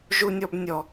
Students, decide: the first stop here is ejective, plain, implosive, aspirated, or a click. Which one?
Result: plain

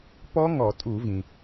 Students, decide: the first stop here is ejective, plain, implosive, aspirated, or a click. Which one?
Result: plain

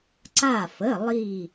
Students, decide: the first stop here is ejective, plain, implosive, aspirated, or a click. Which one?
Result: click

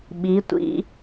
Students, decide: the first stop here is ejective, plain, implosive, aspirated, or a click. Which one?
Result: implosive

